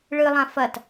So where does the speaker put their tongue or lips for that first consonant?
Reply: retroflex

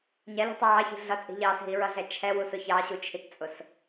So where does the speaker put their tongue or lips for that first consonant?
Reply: palate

